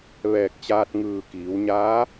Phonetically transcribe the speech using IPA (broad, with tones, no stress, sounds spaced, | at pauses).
ʋ ɛː˧˩ k̚ t͡ɕ aː˧ t̚ ŋ ɯː˧˩ k iː˩˧ w ɲ aː˧˥